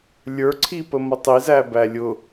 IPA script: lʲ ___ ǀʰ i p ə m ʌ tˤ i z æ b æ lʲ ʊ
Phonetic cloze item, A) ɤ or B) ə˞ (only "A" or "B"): B